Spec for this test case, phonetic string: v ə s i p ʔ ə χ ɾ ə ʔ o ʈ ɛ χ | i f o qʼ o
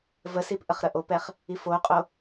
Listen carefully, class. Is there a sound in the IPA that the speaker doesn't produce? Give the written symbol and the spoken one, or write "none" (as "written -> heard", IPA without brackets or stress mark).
ʈ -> p